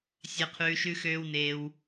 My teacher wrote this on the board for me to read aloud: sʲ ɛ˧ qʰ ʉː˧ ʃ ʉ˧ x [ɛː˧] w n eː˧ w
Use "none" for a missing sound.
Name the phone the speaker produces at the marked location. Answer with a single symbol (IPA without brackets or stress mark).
øː˧